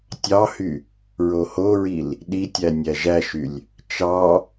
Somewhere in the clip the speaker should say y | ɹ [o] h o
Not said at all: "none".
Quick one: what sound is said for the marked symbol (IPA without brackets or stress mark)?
o